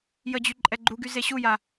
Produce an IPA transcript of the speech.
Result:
j ə d͡ʑ y ǃʼ ɛ ɡ͡ǃ u ɡ y z e ɕ u j a

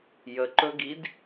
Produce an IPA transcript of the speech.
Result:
j ə ǃ ɵ ɡ i d

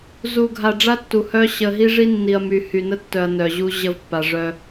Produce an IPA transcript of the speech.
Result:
z u˨ ɡʱ a˨ ɖ͡ʐ a˦ tː u˨ h œ˦ ɕ ə˨ ɦ i˦ ʐ i˦ nː i˨ ɐ̯ m y˨ h y˨ n ə˦ tː œ˨ ɐ̯ n œ˨ ʑ u˦ ʑ ə˦ v pː a˨ ʐ œ˦

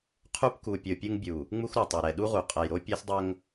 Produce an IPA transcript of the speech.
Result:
qʰ u˦ p k u˨ pʲ o˨ pʲ u˦ ŋ bʲ u˨ | ŋ͡m u˦ x ɾ u˨ tˤ ɐ˨ ɾ ɛ˨ ɗ u˦ ʁ u˨ qʼ ɐ˨ j ɾ o˦ pʲ ɛ˦ s dˤ o˦ ŋ

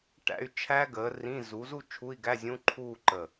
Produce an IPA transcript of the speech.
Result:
ʈ æ̰˥˧ y̯ t͡ʃʰ æ˦˥ ɡ əː˨˥ r ĩː˧˥˧ z u˨˥ z u˥˧ t͡ʃʰ u˧˥˧ i̯ ɡ æ˧˥˧ zʲ ũ˧˥˧ ǃʰ uː˥˧ ǃ ə˧˩

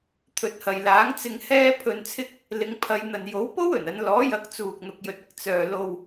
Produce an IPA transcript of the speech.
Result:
t̪ʰ ɵ˨˥ t̚ h ɐ˨ j l aː˨˥ ŋ t͡s ɪ˧ ŋ h ɛː˥ pʰ ɵ˧ n t͡sʰ ɪ˥ k̚ | l ɪ˨˧ ŋ pʰ ɐ˨˧ j n̪ ɐ˨ n j o˨˥ w p o˥ w ɵ˨˩ n ɐ˨˧ n l ɔː˨˥ j ɐ˨˥ k̚ t͡s uː˨ k̚ n̪ ʊ˨ k̚ j ɵ˨ t̚ ɪ˧ k̚ t͡s œː˨ l o˨ w

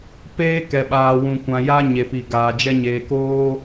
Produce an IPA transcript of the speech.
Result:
p eː˦ k ɛ˨ ɓ aː˨ w ũ˨ kʷ ã˨ j a˦ ɲ e˨ p i˨ ɡ aː˨ d͡ʒ ɛ˦ ɲ eː˨ k oː˦

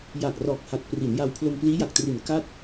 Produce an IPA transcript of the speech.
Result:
j a˨˩ k̚ r ɔː˨˩ k̚ h a˨˩ t̚ p r i˩˦ n j a˧ w pʰ l o˧ m p l iː˦˥ j a˨˩ k̚ t r i˨˩ n k a˥˩ t̚

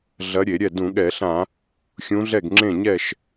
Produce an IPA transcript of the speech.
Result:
ɮ ɐ˧˥ ɾʲ e˧˩˧ ɾʲ ɛ˥˩ d ũ˧˩˧ ɠ ɛ˧˩˧ ɬ ã˧˩˧ | xʲ ũ˧˥ ɮ ɛ˥˩ ɡ ŋ͡ǁ ẽ˥˩ ɲ ɛ˥˩ ʃ

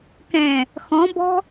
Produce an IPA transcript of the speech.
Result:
k ɛ̃ | x ɔ̃ b ɔ̤

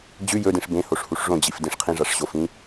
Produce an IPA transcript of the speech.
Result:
d͡ʑ ʉ j ɵ d ĩ ʂ b ẽ h o ʂ h u ʂ ʐ õ d͡ʑ i f d ĩ ʂ qʰ ĩ ʐ a ʂ ɕ o f ĩ

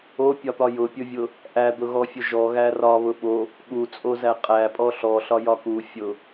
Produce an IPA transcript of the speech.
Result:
o pʲ ɒ t̪ ɒ j ʊ pʲ ʊ vʲ ʊ | ʔ æ d̪ ʊ ɣ ɔ fʲ ʊ ʒ ɔ ɣ æ r ɒ β ʊ ɓ o | ɠ u t͡sʼ o z æ qʼ æ pʼ ɔ ɬ ɔ ɬ ɒ j ɒ k u fʲ ʊ

